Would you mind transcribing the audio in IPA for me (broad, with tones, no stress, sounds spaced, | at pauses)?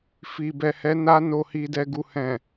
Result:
f i˨ b ɛ˨ h ɛ˨˦ n a˧ n o˨ h i˨ d ɛ˨ ɡ u˨ h ɛ̃˨